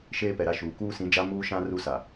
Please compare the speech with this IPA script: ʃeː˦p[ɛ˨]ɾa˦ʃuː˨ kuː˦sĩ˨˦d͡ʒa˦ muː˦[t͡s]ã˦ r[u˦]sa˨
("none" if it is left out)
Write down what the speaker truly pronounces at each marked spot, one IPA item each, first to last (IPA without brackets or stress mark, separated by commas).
ɛ˨, ʃ, u˦